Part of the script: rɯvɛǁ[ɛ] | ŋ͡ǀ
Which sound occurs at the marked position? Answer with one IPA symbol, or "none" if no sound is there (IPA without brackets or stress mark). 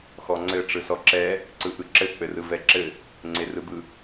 ɘ